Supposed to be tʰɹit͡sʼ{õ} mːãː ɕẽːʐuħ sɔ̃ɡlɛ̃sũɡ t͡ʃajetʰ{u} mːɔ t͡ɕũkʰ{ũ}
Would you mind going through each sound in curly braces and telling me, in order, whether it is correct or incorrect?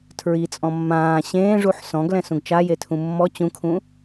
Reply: incorrect, incorrect, correct

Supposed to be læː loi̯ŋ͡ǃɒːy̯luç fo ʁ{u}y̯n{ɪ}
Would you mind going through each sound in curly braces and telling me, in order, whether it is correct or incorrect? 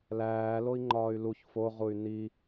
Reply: correct, incorrect

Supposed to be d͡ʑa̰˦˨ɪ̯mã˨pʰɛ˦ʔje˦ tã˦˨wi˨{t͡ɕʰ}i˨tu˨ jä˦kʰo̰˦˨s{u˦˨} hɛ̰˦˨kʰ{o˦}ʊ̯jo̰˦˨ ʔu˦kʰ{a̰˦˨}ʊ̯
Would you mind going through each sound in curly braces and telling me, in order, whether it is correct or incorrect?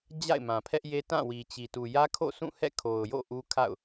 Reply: incorrect, incorrect, incorrect, correct

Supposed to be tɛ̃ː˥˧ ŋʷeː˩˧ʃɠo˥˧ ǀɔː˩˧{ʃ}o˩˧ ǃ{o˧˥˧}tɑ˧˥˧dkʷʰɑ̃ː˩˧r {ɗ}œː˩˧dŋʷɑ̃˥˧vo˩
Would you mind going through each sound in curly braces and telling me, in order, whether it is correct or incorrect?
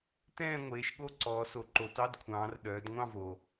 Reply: incorrect, incorrect, correct

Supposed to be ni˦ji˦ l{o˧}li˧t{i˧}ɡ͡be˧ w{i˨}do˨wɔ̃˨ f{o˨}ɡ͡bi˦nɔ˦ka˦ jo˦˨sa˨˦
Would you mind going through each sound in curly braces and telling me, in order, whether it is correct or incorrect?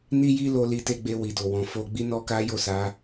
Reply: correct, incorrect, correct, incorrect

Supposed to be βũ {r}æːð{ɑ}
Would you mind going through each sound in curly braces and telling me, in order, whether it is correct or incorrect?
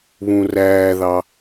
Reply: correct, correct

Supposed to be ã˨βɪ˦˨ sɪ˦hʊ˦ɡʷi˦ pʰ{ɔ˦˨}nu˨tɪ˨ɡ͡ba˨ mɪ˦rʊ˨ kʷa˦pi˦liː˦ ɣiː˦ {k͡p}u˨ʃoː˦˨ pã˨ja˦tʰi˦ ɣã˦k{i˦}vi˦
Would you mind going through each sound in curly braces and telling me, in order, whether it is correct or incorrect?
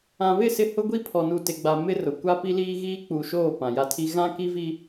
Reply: incorrect, correct, correct

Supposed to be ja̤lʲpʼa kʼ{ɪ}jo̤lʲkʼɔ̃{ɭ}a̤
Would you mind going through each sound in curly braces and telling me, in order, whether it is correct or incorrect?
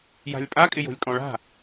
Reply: correct, correct

